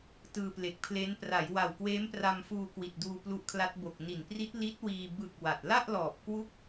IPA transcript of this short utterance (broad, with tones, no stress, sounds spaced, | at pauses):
t ɯː˧ p l e˨˩ k̚ pʰ l e˦˥ n p r a˩˦ j w a˨˩ w k w eː˦˥ m p r a˧ m f uː˧ k w i˨˩ t̚ d uː˧ p l u˦˥ ʔ kʰ l a˦˥ t̚ b o˨˩ k̚ n i˨˩ n p r i˦˥ t̚ l i˦˥ t̚ w iː˧ b ɯ˨˩ k̚ w a˨˩ t̚ l a˥˩ ʔ l ɔː˨˩ p̚ k w u˥˩ k̚